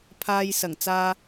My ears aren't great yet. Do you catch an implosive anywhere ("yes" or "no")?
no